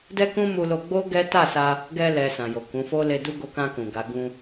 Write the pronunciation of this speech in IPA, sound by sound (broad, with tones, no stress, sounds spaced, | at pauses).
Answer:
d ɛ˦ k ũ˦ m u˧ l o˧ ɡ͡b o˦ ɡ ɛ˦ t a˦˨ s a˧ | ɡ ɛ˧ l ɛ˨ s ã˨ j o˨ k ũ˨˦ f o˦ l e˧ d u˦ ɡ o˧ k ã˧ k ũ˨ ɡ a˨˦ ɡ ũ˧